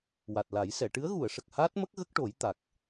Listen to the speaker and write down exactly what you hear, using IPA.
w a˨˩ t̚ l a˨˩˦ j s ɛ˨˩˨ ʈ ɨ˧˥ ə̯ ɣ u˨˩˨ ə̯ ʂ ə˨˩ k̚ h aː˦˥ t̚ m ə˦˥ k̚ ɣ ə˦˥ k̚ ʈ o˨˩˦ j t̪ a˨˩ k̚

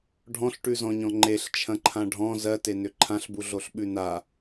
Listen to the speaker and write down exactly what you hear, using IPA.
ɖʱ ɔ̃ ɬ ʈ ʉ z ɔ̃ ɲ ɔ̃ ŋ͡ǃ e ɬ t͡ʃʰ ɐ̃ ǃʰ ã ɖʱ ɔ̃ z ɜ t e n ʏ ǃʰ ã ɬ b u ɮ o ɬ ɓ ʉ n a

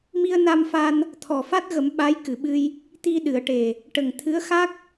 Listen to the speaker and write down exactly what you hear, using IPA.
m i˧ ə̯ n a˧ m f a˧ n | t̪ʰ ɔ˨˩ f a˦˥ t̚ ɣ ə˨˩˦ m ɓ a˧˥ j k ɨ˨˩˨ ɓ ɨ˧ j | t̪ i˧ ɗ ɨ˨˩˨ ə̯ ʈ e˨˩ | ʈ ə˨˩ ŋ t̪ʰ ɨ˧˥ ə̯ x a˦˥ k̚

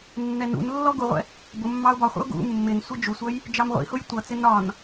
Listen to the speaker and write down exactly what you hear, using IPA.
nː ɛ n ṵ n lː ɔ ɡ u ʁʷ ɛ̰ | b ʊ mː ɑ ʊ̯ b ɒ χʷ ə̰ ʊ̯ ɡ ṵ mː ɪ n sʷ ɪ d͡ʒ u sʷ ʌ j | d͡ʒ ɑ m ʁʷ ḭ h ʊ j tʷ ʌ t͡s ɪ n ɒ n

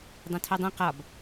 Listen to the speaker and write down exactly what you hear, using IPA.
dˤ ẽ tʰ o dˤ ĩ q ɒ b

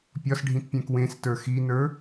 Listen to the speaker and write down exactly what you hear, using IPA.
pʲ ɒ s ɖʱ ĩ t pʲ ɛ̃ k w ẽ s t ə˞ x i n ə˞

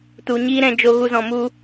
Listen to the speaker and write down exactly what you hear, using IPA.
t u˨ ɲ iː˦ ɾ ɛ̃˧ d͡ʒ o˧ ɣ u˧ z ɔ̃˨ m u˧

